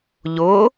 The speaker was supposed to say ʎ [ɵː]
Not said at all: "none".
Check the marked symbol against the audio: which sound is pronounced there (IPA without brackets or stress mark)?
ʊː